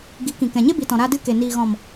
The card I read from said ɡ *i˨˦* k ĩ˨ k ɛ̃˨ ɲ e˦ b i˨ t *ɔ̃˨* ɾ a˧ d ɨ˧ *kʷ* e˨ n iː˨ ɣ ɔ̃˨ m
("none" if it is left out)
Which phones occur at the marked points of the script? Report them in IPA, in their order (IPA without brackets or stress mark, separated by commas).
i˨˦, ɔ̃˨, k